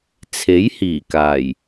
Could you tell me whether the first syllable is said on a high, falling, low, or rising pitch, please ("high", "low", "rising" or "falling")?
rising